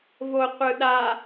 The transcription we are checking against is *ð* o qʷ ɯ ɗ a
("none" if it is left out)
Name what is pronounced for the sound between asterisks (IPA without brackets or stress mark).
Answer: v